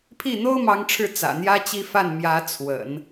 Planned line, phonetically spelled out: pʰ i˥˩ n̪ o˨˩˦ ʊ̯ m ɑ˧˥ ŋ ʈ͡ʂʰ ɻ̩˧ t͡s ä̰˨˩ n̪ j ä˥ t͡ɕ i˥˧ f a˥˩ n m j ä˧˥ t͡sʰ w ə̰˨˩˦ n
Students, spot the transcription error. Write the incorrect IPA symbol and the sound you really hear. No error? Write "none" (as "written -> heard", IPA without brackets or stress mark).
o˨˩˦ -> o˥